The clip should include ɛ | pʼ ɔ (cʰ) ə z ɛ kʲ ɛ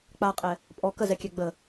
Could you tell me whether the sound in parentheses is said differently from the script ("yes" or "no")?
yes